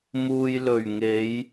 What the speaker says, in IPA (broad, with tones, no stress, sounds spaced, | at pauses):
m uː˨ j l ɵ˨˩ ɥ ŋ e˨˧ j